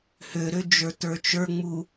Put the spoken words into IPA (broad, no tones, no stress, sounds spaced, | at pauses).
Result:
h ø ɾ ø d͡ʒ ə˞ t ə˞ t͡ʃ ə˞ ŋ͡m u